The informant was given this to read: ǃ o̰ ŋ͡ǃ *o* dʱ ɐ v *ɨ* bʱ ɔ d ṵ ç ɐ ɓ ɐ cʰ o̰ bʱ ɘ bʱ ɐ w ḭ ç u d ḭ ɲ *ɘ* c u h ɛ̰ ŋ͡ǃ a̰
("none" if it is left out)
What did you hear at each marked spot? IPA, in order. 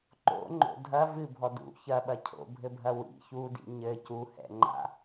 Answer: o̰, ɨ, ɘ

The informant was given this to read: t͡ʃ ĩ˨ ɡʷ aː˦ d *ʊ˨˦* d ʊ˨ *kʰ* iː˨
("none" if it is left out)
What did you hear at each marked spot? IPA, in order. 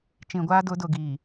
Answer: ʊ˨˦, ɡ

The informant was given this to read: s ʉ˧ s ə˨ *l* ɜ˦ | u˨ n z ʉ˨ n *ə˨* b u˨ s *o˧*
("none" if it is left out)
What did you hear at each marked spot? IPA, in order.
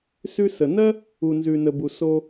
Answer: n, ə˨, o˧

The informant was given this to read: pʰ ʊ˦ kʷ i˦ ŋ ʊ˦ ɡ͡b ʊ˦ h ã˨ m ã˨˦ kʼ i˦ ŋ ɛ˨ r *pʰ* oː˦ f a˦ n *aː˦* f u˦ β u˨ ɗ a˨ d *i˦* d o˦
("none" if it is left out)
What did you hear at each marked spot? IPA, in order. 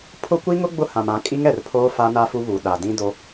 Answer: pʰ, a˦, ĩ˦

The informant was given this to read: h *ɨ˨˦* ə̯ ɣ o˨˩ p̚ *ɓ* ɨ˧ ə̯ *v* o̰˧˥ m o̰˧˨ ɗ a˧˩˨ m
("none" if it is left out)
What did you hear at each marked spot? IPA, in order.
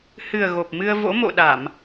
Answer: ɨ˨˩, m, v

